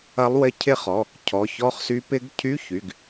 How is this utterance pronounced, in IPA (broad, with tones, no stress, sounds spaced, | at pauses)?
ɐ˧˥ lˠ w ɪ˦˨ cʰ ɪ˦˨ χ ɔ˩˧˩ | cʰ ɔ˩˧˩ ç ɔ˧˥ χ s y˧˥ p ɪ˧˥ ɡ cʰ y˧˥˧ ç y˩˧˩ ɡ